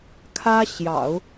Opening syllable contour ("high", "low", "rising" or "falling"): high